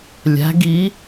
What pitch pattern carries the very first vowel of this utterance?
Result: rising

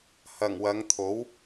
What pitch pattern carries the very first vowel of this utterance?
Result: low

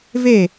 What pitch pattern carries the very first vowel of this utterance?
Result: falling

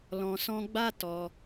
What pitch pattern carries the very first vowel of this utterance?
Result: low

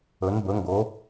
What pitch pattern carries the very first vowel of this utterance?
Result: rising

